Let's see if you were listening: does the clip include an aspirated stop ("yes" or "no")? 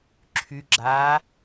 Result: yes